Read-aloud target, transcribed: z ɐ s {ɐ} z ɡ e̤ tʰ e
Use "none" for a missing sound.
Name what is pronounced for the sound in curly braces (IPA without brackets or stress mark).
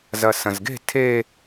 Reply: ɐ̃